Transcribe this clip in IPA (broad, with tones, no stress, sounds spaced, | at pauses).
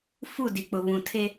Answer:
f u˦˨ d i˨ k͡p ʊ˨ β ũ˨ tʰ e˦